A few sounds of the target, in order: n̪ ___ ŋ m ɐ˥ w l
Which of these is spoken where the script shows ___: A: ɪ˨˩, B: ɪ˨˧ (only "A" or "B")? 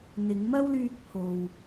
B